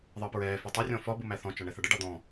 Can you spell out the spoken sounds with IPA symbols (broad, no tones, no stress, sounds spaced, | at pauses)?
ðˤ əː p ɹ ɛː f ɛ tˤ u rʲ ɔ̃ f ɒ b u m æ θ ɔ̃ t͡ʃ ɒ ɳ ɛ θ ɑ ɖ ə ɖ ɑ d̪ ɔ̃